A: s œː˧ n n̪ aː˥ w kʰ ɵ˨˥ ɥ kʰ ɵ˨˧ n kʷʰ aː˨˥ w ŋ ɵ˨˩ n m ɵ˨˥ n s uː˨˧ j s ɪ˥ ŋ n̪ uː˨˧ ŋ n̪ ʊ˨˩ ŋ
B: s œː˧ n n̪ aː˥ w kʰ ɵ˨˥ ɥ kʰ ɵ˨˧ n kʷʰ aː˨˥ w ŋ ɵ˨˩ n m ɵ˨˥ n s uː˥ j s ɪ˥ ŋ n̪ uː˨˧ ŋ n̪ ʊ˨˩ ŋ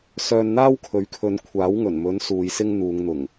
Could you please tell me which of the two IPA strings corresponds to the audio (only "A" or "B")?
A